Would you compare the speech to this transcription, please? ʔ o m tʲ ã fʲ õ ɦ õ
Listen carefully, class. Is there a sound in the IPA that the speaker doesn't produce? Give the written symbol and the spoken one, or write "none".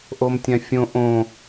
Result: ɦ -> ʔ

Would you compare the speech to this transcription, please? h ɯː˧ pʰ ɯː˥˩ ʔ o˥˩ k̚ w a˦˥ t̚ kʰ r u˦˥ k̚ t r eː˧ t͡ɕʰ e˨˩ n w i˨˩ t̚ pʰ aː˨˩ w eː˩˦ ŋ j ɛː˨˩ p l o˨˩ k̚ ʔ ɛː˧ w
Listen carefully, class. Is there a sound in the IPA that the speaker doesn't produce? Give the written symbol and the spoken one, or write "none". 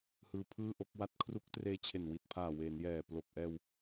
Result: ŋ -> n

